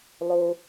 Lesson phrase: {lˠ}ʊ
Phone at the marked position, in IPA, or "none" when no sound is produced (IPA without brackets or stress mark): lˠ